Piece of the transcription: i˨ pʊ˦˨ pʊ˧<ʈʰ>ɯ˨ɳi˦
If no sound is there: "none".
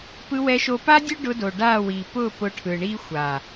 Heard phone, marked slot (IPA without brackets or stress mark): ʈʰ